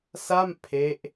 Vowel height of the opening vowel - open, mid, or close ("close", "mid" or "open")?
open